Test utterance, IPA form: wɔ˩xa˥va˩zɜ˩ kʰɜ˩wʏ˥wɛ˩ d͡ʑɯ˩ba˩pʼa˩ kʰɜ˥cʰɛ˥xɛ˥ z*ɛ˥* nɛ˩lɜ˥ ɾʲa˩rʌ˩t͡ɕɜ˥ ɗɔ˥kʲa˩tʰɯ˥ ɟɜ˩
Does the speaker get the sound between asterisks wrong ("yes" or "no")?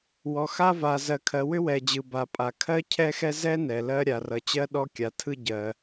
no